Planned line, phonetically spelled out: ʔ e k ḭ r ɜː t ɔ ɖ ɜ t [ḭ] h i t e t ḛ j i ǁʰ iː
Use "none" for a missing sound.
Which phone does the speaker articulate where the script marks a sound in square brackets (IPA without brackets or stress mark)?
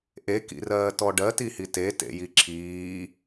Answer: i